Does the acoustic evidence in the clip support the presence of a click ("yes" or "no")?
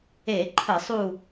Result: yes